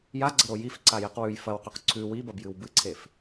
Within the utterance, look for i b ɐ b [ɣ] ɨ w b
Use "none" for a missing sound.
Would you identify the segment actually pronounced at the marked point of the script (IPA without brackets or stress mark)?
j